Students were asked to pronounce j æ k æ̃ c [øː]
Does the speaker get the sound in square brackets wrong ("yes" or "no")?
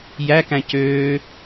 no